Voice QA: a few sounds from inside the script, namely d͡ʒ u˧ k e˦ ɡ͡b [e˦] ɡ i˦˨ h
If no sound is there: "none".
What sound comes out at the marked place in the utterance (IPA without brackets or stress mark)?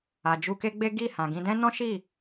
e˦